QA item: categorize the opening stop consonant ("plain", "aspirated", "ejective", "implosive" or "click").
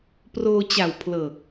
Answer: plain